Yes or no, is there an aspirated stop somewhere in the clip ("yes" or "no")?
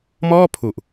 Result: yes